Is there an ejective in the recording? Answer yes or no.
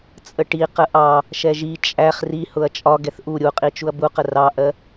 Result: yes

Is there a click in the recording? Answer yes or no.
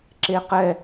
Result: yes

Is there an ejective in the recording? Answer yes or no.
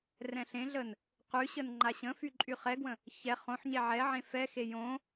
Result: yes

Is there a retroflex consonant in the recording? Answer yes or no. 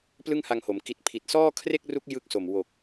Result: no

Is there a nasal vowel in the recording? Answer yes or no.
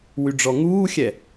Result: no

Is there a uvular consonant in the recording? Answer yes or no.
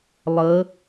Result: no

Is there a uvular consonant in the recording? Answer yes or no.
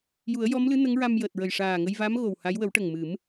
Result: no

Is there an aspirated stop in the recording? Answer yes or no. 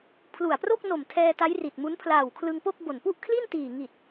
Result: yes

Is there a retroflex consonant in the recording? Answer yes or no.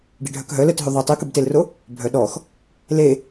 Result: yes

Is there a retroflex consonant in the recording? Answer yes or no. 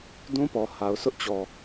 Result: no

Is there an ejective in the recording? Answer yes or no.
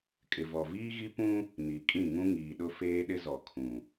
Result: yes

